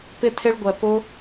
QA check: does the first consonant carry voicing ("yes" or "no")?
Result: no